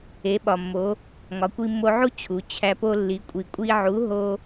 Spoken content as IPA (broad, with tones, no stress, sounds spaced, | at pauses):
e˩˧ ɓ ɒ˩ mː o˩˧ | ŋ ɒ˩˧ kʷ i˧ mː o˧ ʕ u˥ t͡ɕʰ u˩˧ t͡ɕʰ æ˧ p o˥ lː i˧˥ kʷʼ i˧ kʷʼ i˥ ʕ u˧˥ ɦ o˥